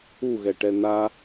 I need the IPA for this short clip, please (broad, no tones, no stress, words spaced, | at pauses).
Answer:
uɣɛʈɛ na